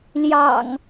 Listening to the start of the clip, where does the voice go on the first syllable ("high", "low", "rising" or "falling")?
low